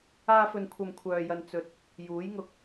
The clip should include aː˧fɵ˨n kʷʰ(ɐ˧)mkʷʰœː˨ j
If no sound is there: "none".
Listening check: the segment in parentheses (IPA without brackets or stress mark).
ɐ˧